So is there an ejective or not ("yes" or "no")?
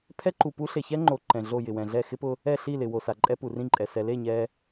yes